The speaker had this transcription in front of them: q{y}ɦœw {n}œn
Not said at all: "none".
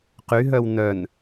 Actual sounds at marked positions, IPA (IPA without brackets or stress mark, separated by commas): y, n